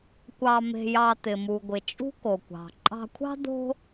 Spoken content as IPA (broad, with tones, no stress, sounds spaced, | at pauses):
kʷ ɑ˨ m e̤˨ j ɑ˨ t̪ ɪ˩ m u˩ ɡʷ ɪ˩ t͡ʃʼ ṳ˥ k o˩ kʷ ɑ̤˩ ǃʼ ɑ̤˨ kʷʰ ɑ̤˦ d̪ o̤˦